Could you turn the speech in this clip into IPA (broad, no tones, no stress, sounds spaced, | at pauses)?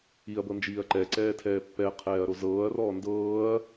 i ɐ̯ b ɤ n d͡ʒ iː ɐ̯ ǃ ɛ ǀ ɛː tʰ ɛː pː ɛ qʰ ɛː ɐ̯ ɾ o z ɤː ɐ̯ r ɔː n d ɤː ɐ̯